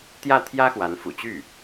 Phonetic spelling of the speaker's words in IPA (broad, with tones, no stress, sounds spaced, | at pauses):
t̪ j ä˥˩ t̪ʰ j ä˥ x w a˧˥ n f ṵ˨˩ t͡ɕ y˥˩